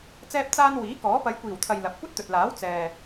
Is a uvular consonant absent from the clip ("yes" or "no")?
yes